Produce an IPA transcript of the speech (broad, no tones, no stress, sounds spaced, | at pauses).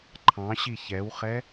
ǃʰ ɑ̃ ɕ i ç ɛ w χ ɛ